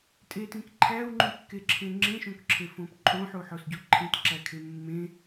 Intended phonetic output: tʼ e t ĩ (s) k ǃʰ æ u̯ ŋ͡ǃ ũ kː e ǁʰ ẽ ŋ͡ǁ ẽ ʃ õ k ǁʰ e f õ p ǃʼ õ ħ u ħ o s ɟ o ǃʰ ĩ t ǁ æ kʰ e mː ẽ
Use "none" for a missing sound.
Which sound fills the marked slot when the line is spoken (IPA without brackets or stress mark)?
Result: none